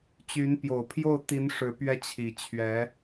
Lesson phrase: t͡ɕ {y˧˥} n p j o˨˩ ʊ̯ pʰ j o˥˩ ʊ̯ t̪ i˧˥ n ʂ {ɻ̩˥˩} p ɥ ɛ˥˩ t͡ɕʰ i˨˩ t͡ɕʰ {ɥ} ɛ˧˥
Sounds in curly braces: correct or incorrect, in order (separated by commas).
correct, incorrect, correct